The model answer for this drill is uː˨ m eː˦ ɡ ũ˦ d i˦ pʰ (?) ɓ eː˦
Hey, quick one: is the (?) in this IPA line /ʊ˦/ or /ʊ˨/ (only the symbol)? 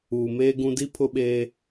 ʊ˦